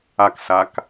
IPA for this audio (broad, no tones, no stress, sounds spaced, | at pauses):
a k s a k